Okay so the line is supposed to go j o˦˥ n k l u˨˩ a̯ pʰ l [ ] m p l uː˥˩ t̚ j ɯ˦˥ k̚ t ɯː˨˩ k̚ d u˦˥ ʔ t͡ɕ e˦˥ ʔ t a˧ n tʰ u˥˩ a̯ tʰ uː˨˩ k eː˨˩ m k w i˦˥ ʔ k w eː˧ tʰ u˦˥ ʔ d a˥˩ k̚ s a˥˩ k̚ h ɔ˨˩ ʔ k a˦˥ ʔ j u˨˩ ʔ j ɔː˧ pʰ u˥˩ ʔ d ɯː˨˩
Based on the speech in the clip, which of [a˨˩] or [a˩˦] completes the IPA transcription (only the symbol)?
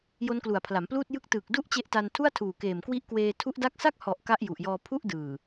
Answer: a˩˦